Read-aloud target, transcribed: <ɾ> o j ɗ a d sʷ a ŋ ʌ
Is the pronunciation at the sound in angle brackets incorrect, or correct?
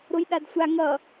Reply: correct